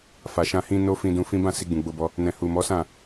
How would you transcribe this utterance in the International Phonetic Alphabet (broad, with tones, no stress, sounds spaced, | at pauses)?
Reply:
f a˨ ʃ ã˧ h ĩ˦ n o˦ f ĩ˧ d ũ˧ f ĩ˦ b ã˦˨ s i˧ ɡ͡b ũ˨ ɡ͡b o˧ b ɔ˧ | n ɛ̃˨ h u˨ m ɔ˨˦ s ã˦˨